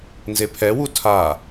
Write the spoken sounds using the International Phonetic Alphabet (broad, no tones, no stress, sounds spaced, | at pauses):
n z e pʰ ɛ w u tʰ a